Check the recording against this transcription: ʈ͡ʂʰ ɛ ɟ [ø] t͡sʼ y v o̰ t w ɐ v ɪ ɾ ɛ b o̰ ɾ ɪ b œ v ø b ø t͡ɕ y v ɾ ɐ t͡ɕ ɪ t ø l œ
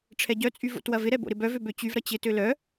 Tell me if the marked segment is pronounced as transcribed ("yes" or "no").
no